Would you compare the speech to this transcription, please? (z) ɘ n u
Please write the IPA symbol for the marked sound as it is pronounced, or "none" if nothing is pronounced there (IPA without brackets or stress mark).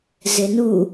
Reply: z